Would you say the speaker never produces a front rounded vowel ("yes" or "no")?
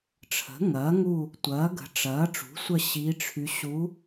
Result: no